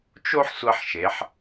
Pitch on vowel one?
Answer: high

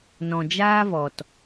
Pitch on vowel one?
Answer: low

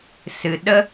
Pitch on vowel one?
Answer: low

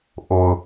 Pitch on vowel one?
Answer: low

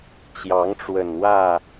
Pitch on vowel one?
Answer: rising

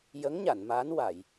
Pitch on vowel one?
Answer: rising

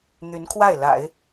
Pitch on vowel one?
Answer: rising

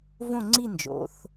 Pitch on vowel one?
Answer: falling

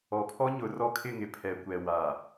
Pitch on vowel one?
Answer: low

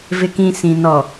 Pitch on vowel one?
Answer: low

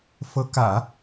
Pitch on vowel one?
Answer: rising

